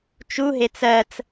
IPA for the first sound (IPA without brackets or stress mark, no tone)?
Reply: t͡ʃ